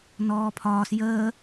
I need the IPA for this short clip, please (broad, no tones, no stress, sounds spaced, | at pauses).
n ɔː pʰ ɒː s j əː